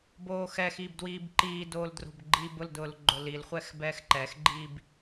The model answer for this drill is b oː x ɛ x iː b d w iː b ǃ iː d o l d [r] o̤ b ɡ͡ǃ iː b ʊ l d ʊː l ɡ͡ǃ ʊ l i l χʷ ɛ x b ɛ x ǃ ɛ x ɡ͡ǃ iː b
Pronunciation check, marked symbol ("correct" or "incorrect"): correct